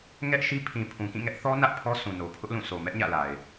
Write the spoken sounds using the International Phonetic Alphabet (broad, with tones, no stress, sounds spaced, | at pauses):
ŋ ɛ˦ ʔ ʃ i˦ pʰ ĩ˨ pʰ ũ˨ k ĩ˦˨ ŋ ɛ˦ ʔ θ ɔ˦ n ä˦ ʔ pʰ ɔ˦ sʰ ũ˨ n o˨ pʰ ʊ˦ ʔ l ũ˦˨ sʰ o˨ m ɛ˦ ʔ ɲ ä̰˦˨ l a˨ ɪ̯